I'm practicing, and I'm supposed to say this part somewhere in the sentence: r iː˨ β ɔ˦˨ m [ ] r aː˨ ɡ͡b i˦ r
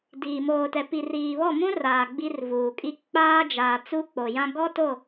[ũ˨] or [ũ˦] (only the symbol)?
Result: ũ˦